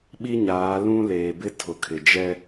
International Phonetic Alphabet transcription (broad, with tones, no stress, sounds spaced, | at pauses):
ɓ i˦ ɲ aː˨˦ l ũ˦ l eː˨ b ɪ˦ tʰ ʊ˨ kʰ ɪ˨ d͡ʒ ɛ˦